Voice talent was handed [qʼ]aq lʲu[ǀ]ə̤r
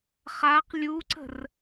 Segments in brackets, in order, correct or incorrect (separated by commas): incorrect, correct